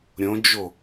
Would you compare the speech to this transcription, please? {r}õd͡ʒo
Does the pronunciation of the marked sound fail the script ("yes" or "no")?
yes